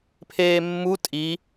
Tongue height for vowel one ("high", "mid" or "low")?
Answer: mid